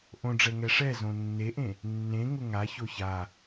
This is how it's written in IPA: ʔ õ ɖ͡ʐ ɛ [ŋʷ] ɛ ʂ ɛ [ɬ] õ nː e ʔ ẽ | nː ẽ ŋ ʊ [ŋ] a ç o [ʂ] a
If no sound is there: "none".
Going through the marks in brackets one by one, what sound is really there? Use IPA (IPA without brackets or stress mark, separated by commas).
ŋ, z, ŋ, ç